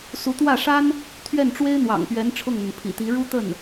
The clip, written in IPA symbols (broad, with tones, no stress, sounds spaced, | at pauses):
s u˧˥ t̪ w ä˥˩ ʂ a˥ n | t̪ʰ ɥ ɛ˥˩ n ʈ͡ʂ w e˥ ɪ̯ n̪ w ɑ̰˨˩ ŋ p ɥ ɛ˧˥ n ʈ͡ʂʰ ʊ˥˩ ŋ n̪ ə˩ n pʰ ḭ˨˩ t̪ i˧˥ ɻ u˥ t̪ ə˥˩ n